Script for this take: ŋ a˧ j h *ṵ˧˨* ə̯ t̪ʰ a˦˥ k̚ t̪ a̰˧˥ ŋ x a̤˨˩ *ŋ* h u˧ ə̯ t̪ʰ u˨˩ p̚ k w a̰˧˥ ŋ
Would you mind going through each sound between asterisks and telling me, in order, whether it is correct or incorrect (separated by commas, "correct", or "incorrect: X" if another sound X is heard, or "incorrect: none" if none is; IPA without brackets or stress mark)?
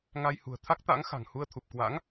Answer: incorrect: ṳ˨˩, correct